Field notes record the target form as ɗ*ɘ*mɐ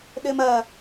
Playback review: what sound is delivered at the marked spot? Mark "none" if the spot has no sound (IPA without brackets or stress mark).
ɘ